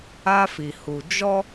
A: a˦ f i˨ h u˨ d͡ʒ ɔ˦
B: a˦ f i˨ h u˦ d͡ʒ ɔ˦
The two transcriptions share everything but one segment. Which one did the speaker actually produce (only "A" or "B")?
A